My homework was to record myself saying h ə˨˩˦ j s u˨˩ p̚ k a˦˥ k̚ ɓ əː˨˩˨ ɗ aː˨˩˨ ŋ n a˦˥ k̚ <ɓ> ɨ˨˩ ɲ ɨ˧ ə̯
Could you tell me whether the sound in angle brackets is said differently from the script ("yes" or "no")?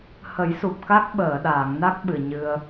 no